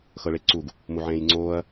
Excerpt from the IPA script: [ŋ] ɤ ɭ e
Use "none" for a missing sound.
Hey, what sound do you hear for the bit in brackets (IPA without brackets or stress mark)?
x